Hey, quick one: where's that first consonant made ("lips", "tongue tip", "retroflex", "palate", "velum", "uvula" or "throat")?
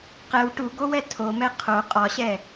uvula